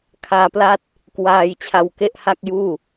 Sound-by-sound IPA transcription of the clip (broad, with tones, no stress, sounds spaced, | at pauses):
kʰ aː˧ p l a˥˩ t̚ | k w aː˧ j t͡ɕʰ a˧ w k e˥˩ ʔ h a˥˩ k̚ j uː˥˩